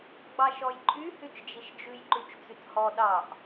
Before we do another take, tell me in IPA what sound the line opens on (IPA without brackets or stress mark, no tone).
ɡ͡b